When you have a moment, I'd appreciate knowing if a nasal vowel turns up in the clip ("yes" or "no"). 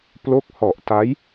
no